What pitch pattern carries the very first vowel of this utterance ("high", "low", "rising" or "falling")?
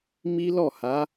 high